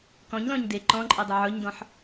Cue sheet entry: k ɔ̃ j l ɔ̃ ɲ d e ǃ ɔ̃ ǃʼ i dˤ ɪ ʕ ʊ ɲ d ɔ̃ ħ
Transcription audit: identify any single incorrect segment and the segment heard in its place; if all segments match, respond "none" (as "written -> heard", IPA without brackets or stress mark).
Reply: j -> ɲ